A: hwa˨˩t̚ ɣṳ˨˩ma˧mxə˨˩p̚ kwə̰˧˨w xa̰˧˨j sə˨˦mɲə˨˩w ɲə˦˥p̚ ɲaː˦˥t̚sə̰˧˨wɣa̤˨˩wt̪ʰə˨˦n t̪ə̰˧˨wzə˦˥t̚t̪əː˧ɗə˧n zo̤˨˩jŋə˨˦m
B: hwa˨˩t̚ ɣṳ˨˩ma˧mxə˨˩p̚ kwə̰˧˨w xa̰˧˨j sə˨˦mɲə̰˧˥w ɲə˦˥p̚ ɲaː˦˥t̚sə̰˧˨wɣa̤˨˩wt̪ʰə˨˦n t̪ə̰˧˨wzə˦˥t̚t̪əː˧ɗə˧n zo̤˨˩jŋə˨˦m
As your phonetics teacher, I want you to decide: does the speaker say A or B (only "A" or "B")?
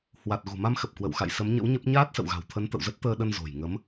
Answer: B